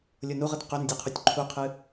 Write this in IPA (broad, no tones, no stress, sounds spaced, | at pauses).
lʲ o n u ʁ ə t q ø n dʲ ø qʰ u tʲ ǃʰ u qʰ ɨ